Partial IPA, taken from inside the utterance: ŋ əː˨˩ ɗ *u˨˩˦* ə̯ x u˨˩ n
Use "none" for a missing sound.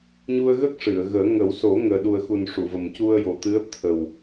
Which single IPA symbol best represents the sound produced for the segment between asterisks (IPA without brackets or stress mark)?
u˨˩